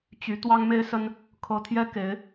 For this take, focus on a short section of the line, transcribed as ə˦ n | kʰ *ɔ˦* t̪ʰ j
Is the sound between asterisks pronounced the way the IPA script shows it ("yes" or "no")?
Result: no